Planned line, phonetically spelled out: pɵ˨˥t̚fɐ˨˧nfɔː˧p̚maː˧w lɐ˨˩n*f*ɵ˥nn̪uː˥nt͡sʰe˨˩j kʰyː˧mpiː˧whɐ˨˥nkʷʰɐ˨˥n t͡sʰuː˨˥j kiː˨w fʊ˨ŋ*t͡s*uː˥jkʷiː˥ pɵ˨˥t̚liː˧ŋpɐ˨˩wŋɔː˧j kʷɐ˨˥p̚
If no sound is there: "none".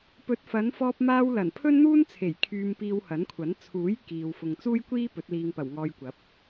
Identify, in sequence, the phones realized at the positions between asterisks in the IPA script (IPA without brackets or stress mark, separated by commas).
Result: pʰ, t͡s